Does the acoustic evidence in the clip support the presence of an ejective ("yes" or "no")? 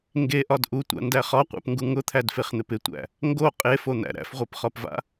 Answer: yes